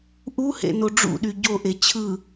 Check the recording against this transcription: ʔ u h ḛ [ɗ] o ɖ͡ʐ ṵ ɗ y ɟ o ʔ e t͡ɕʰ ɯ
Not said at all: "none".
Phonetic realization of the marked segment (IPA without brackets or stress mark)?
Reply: n